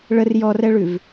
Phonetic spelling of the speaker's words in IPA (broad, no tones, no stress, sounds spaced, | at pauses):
ɭ ə r j ɔ r ɛ ɭ ʉ v